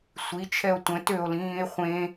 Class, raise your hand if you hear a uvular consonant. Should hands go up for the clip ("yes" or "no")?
yes